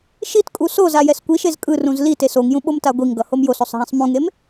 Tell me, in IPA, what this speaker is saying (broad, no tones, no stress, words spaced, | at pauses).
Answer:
ʃitkʼu soza jɛskʷiʃez kʼɯrũz lite soŋjũ ɓomtaɡʷiŋɡʌ homjososˤ ɦɛ̃sˤmũŋem